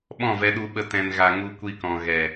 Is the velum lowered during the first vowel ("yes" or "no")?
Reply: yes